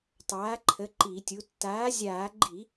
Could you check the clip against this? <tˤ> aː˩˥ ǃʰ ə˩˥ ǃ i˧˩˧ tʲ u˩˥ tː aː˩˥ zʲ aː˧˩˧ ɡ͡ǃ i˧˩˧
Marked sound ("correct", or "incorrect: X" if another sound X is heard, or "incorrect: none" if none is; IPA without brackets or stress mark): correct